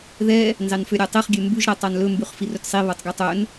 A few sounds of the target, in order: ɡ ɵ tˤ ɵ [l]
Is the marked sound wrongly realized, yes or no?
yes